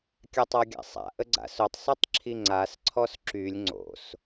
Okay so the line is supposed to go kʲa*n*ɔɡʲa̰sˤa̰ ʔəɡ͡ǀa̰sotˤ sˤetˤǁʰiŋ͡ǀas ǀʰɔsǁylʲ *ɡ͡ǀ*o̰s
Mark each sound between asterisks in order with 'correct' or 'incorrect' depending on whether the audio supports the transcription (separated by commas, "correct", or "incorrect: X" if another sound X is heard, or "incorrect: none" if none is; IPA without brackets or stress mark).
incorrect: tˤ, incorrect: ŋ͡ǀ